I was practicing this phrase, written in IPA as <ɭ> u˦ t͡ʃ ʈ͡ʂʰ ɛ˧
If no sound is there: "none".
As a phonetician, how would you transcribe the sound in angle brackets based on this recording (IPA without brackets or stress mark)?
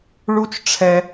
ɭ